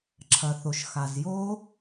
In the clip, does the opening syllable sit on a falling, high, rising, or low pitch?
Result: low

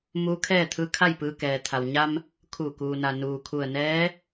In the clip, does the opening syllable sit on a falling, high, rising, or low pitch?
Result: rising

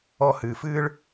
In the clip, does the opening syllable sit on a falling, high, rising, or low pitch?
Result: high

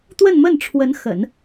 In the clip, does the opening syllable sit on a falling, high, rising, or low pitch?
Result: falling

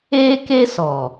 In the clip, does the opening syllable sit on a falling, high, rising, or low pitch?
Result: high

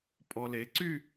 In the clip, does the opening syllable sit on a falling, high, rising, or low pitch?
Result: low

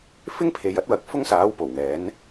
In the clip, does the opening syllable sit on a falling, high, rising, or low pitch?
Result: high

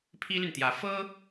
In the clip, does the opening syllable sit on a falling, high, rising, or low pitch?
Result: high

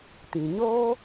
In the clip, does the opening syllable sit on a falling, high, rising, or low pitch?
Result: low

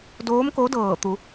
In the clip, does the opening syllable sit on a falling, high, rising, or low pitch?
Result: rising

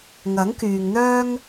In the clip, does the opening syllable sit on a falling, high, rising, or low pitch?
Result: rising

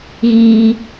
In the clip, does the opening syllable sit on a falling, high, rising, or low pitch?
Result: high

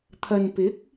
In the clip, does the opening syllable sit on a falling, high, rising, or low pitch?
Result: low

